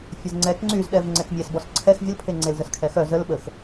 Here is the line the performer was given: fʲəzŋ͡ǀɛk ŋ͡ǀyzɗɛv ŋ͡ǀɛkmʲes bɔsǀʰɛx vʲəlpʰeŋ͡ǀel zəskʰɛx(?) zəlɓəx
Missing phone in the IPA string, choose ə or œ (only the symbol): œ